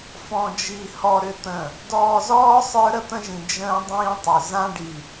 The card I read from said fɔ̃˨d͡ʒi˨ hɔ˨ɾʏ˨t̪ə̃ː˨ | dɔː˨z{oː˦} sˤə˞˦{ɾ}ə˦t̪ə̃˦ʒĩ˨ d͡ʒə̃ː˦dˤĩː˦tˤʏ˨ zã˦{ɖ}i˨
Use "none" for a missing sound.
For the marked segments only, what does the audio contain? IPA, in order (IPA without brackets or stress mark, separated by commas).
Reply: ɔː˦, ɾ, ɖ